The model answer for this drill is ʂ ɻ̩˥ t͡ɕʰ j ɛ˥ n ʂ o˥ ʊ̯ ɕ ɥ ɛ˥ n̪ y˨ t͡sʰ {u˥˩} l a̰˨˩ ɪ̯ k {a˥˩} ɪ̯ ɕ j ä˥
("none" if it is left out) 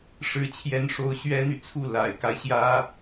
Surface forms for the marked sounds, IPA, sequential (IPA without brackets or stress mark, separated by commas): u˥˩, a˦